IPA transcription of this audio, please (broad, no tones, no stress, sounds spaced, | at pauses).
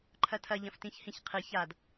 ǃʰ ɐ tʰ ɐ ʎ ɐ̃ f t ĩ ç h ĩ ç qʰ ɨ ç a d